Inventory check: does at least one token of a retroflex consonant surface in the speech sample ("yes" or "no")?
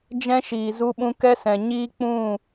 no